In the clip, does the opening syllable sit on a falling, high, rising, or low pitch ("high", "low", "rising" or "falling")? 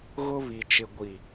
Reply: high